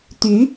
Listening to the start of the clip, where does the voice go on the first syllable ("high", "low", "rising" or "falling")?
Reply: rising